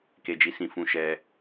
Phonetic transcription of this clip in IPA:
k e˧ d͡ʒ i˧ s ĩ˧ f ũ˧ ʃ ɛ˧

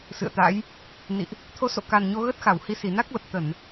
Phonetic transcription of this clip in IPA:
s ɨ̰˧˨ ə̯ t̪ a̰˧˥ j | n ḭ˧˨ ʔ | t̪ʰ o˨˦ s o̰˧˨ k a˨˩ n ɲ o˧ ɣ ə˦˥ t̚ x a˧˩ w h i˧ s i˧˩ n a˦˥ k̚ l ə˨˩ p̚ t̪ ə˧˩˨ n

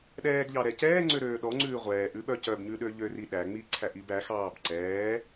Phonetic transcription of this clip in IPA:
ɗ ɛː ɡ ʎ ɑ ɾ ɛ c ɛː ŋ͡ǀ ø ɾ øː ɗ ɔ ŋ͡ǀ ʉː ʁʷ ɛː ʔ ʉ ɓ œ c œ b ɲ ʉ ɗ ø ʎ ø r i ɗ æ ŋ͡m i ǀʰ æ ʔ i b æ x ɑː b ǀ ɛː

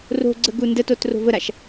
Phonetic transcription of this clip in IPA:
r o̤ ɡ͡ǀ ə ɡ u n d ə t o t r o̤ v ə ɾ a ʃ

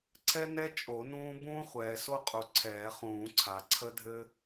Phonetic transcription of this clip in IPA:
ǀʰ ɛ˥ n ɛ˥ t͡ʃʼ o˨˩˦ n ũː˥ b ũː˥ χʷ ɛː˩ s o˥ qʼ u˩ ǀʰ ɛː˨˩˦ χ ũː˨˩˦ ǀʰ a˩ ǀʰ ə˥ dʱ ɘ˥

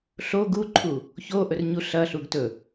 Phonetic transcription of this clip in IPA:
ɬ o ɡ u ǃʰ u | ç o ʔ ɵ r ɲ u ɬ ɐ ɬ u ɡ t ɵ

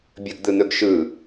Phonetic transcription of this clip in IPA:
bʲ ə ɡ d̪ ɯ n̪ ɵ ɡ ʃ ɯ

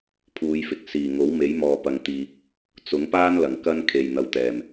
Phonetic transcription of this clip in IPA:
pʰ uː˨˧ j f ɪ˨ k̚ s iː˨˩ ŋ o˨˥ w m e˨˥ j m ɔː˨ p ɐ˧ ŋ t̪ iː˧ p̚ | t͡s ʊ˨˥ ŋ p aː˥ n l ɐ˨˩ ŋ k ɐ˥ n kʰ e˨ j n̪ ɐ˨ w t̪ ɛː˨˩ m

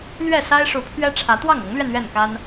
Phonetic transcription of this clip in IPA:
l ɥ ɛ˥˨ s a˦ ɪ̯ ʂ u˨˦ pʰ ɥ ɛ˦ ʈ͡ʂʰ ä˨˦ t̪ w ɑ˥˨ ŋ ɤ˨˦ ŋ l ɥ ɛ˧ n ɥ ɛ˥˨ n k a˦ n

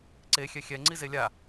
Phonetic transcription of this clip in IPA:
ǀ e xʲ ɛ xʲ ɛ ŋ͡ǀ i z e lʲ a

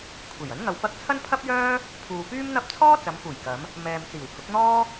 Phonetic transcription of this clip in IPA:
kʷʰ e˨˩ j ɐ˨˥ n ŋ ɐ˧ w p ɐ˥ k̚ t͡sʰ ɐ˥ n pʰ ɐ˥ p̚ j œː˥ | pʰ uː˨ p yː˥ m n̪ ɐ˥ p̚ t͡sʰ ɔː˥ t͡s ɐ˨˧ m f uː˨˩ j k ɐ˨˧ m | m ɛː˨ m t͡s iː˨˩ w h ʊ˨˥ k̚ n̪ ɔː˥

